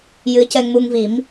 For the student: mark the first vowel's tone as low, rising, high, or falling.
rising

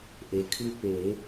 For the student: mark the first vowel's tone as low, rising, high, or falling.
low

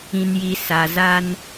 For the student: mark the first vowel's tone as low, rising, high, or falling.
low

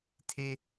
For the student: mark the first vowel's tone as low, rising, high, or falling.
high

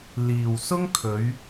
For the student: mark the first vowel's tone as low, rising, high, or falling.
low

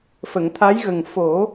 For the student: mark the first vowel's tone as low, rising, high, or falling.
low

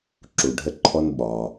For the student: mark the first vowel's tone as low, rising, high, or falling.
low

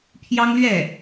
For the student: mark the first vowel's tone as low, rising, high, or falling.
high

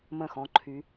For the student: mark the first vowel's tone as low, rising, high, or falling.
falling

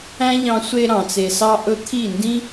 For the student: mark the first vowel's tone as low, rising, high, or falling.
high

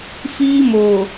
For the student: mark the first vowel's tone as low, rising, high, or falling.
high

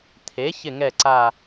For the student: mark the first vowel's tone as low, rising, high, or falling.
rising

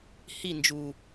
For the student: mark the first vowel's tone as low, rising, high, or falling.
falling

